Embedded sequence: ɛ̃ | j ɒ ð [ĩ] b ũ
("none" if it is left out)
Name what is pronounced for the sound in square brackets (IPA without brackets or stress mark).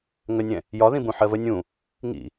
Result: ĩ